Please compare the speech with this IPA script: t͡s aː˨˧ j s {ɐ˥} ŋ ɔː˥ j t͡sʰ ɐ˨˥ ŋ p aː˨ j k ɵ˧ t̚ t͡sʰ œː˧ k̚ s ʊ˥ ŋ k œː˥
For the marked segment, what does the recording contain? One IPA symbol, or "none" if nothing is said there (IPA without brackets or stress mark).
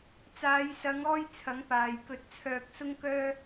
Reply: ɐ˨˧